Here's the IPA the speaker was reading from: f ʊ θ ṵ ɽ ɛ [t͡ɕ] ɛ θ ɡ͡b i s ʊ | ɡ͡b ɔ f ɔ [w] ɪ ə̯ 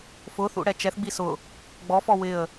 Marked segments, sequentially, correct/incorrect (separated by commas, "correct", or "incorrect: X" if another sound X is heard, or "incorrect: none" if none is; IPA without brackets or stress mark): incorrect: t͡ʃ, correct